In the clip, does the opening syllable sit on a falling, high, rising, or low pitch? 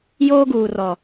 high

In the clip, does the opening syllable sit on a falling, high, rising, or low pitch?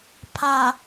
low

